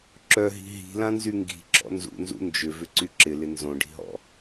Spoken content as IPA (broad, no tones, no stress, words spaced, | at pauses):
ǁœɦi̤ ɦi̤lãnzy ŋɡi̤ǁɔ̰ nzṵnzṵ nd͡ʒʏvʏǀy ǁɪlɪ nzõɖi̤ɦɔ̰